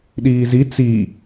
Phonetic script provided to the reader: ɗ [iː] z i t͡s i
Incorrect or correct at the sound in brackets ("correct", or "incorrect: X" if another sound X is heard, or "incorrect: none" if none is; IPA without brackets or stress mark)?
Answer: correct